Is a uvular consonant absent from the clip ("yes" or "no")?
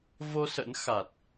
yes